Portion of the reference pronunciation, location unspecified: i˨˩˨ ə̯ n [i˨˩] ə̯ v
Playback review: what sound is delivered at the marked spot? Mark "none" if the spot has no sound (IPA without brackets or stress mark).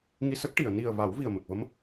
i˨˩